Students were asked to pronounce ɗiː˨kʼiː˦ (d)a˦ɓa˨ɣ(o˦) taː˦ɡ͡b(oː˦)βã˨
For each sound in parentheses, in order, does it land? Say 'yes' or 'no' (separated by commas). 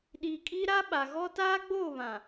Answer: no, no, no